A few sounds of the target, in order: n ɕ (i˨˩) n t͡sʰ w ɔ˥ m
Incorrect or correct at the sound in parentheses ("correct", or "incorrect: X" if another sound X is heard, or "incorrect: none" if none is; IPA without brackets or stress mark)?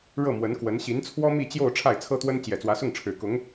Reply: incorrect: i˧˥